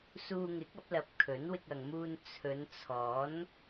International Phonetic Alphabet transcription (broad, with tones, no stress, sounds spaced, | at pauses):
s uː˧ ŋ ɪ˨˥ k̚ ɐ˨˥ p̚ l ɐ˨˥ p̚ kʰ ɵ˨˥ n w ɪ˧ k̚ ɐ˨ ŋ m uː˧ n t͡sʰ ɵ˨˧ n t͡sʰ ɔː˨˥ n